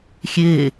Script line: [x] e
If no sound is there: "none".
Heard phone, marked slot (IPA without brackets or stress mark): xʲ